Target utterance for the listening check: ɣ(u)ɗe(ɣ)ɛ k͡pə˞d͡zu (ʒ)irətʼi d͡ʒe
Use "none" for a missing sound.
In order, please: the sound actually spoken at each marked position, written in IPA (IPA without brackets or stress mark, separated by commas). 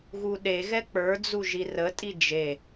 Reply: u, ɣ, ʒ